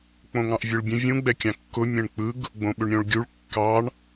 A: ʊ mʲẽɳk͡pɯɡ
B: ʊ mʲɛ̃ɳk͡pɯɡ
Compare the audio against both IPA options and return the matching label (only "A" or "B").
B